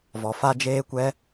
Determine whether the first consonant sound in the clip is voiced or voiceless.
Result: voiced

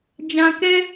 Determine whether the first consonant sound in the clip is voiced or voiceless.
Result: voiced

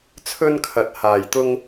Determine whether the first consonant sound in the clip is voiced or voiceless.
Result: voiceless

